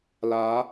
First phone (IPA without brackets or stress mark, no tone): l